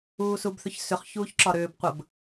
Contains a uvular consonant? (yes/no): yes